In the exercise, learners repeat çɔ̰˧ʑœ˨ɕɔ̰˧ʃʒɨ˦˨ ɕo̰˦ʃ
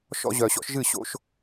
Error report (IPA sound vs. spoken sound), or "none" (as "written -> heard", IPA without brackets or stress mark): ç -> ʃ